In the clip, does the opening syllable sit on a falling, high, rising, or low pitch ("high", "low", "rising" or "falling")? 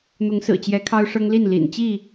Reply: rising